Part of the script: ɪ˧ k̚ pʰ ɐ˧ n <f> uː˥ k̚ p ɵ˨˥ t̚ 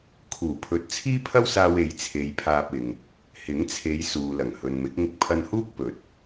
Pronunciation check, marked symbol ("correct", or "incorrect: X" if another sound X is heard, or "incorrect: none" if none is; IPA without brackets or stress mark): incorrect: h